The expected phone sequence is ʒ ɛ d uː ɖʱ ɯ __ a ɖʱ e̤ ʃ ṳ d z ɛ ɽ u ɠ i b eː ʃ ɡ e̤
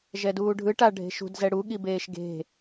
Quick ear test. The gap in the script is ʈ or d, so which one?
ʈ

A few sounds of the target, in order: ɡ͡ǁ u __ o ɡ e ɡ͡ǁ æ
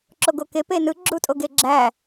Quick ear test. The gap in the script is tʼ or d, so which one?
tʼ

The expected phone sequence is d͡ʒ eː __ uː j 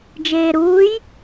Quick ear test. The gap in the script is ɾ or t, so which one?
ɾ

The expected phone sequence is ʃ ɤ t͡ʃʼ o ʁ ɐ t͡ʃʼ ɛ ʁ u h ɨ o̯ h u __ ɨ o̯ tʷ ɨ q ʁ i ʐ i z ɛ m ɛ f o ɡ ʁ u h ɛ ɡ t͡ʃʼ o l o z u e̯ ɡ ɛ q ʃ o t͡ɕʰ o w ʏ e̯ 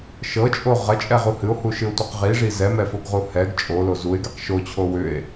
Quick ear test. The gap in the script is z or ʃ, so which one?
ʃ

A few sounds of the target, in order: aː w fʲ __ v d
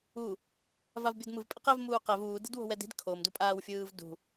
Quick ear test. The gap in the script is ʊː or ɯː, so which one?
ɯː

